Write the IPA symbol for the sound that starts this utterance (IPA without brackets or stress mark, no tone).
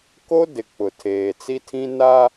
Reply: k